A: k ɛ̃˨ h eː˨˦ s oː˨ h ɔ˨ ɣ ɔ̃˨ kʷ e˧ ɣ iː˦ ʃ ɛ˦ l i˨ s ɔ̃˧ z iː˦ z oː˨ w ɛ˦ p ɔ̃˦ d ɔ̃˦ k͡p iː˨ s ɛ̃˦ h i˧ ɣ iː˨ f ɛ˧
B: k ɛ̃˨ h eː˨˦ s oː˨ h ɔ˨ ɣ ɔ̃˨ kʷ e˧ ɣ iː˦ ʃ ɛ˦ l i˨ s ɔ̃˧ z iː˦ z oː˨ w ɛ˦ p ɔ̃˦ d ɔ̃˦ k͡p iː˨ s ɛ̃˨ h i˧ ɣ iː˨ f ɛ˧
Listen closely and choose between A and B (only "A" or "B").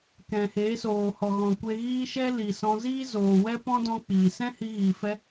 A